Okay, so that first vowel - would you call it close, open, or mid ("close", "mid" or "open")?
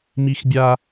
close